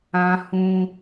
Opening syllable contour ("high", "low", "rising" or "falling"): high